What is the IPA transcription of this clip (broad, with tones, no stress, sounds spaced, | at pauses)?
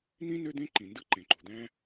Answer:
n̪ ĩ˥ n ø˥ d̪ ẽ˥ ǃ ĩ˩ n d ɯ˥ ǃ ẽ˩ ǃ ṳ˩ d̪ æ̃˥